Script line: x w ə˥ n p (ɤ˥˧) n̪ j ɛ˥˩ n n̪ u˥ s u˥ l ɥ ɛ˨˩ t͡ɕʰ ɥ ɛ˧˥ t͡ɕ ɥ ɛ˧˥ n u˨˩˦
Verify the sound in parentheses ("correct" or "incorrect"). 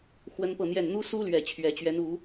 correct